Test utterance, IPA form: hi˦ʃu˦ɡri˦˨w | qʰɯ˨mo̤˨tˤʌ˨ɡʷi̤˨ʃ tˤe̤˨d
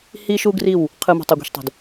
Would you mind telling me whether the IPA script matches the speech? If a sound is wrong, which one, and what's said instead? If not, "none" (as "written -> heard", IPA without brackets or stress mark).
none